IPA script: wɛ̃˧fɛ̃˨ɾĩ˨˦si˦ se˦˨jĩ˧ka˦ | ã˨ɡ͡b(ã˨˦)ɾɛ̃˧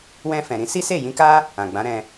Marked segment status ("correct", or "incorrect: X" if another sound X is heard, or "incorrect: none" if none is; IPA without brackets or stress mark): correct